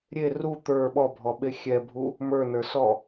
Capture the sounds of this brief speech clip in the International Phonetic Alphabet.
ɾʲe ru t̪ə˞ ɓɔbʱɔɓe xʲɛbʱu | mə˞nə˞sɔ

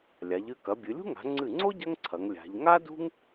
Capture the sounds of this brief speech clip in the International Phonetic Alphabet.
lʲa˩˧ʎɨ˧ kɐ˩˧bʲɨ˩˧lʲṳ˥ ŋa̤˩˧ŋ͡ǀɨ˧˩ŋ͡ǀo˥ ɟɐ˥ŋ ǀʰɐ˩˧ŋlʲa̤˩˧ʎ ŋa˥dṳ˥ŋ

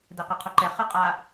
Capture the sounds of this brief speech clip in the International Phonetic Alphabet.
dɛqeqʰoǃɛ χɯqʼa

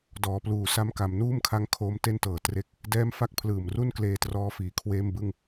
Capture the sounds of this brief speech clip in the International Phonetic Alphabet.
dɔː˩˦pluː˨˩ sa˧mka˩˦mnuː˥˩mkʰa˦˥ŋ kʰoː˦˥mte˥˩ntɤː˨˩ tre˦˥k̚ | dɛː˥˩m fa˥˩k̚pʰlɯː˨˩mru˥˩n kleː˧trɔː˦˥fiː˨˩ kʰweː˥˩mbɯ˥˩ŋ

